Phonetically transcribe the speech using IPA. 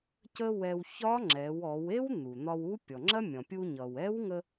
cə˥wɛ˧w çɒ˧˥ŋ͡ǁɛ˩˧wɔ˩˧we˥w n̪u˩n̪ɒ˧wu˧˥ pʲɔ˩ŋ͡ǁɐ˥mʲɔ̃˩ pʲu˧ɲʌ˩w ɛ˧˥wŋə˧

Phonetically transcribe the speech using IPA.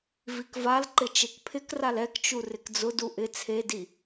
vikvalǃɪ t͡ʃekpʰɪkral ɛkt͡ʃu rɪkd͡zʊdu ʔɪ t͡sʰedi

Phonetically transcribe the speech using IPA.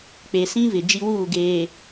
k͡pe˨sĩ˦ vɪ˨ d͡ʒi˦wuː˦˨ ɡeː˨

